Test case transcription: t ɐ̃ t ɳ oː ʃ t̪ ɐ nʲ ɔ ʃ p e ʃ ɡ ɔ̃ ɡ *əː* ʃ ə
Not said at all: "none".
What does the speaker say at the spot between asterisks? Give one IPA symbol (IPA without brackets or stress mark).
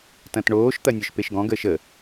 əː